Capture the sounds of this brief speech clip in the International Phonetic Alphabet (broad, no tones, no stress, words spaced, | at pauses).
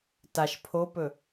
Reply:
taʃ pʰopɵ